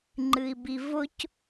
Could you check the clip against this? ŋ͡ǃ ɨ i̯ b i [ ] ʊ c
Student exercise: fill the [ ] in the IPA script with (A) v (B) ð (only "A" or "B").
A